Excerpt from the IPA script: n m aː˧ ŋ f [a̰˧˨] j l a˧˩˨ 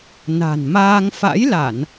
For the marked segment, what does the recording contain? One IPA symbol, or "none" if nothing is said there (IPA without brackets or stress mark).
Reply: a̰˧˥